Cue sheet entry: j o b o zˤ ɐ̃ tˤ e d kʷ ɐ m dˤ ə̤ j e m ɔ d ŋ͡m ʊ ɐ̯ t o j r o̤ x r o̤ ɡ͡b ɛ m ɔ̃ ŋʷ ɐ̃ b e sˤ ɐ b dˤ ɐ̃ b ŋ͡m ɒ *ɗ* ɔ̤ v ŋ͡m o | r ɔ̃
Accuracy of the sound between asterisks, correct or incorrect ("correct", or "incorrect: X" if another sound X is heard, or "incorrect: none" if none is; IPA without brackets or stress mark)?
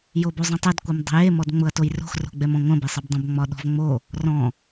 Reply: correct